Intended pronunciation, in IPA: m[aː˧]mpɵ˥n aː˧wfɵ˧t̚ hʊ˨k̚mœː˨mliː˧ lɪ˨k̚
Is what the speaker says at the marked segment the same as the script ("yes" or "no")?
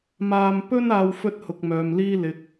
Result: yes